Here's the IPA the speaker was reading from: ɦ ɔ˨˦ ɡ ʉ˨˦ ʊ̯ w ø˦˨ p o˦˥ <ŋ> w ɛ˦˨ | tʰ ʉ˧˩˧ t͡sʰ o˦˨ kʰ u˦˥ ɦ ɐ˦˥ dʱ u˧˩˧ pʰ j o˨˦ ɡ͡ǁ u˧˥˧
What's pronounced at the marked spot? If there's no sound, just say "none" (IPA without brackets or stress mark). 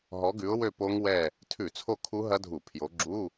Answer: ŋ